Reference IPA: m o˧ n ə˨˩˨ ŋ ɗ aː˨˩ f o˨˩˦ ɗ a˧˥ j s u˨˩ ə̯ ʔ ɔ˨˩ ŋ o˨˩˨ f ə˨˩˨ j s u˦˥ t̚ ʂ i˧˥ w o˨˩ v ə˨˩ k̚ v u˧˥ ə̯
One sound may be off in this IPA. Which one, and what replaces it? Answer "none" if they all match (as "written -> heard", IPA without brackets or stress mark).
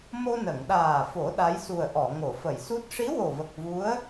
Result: ɔ˨˩ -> ɔ˨˩˨